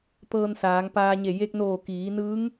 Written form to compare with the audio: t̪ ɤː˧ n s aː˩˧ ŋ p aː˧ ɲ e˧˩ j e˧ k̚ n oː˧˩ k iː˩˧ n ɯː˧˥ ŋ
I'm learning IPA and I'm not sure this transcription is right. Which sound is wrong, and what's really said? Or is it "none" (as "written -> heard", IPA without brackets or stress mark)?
none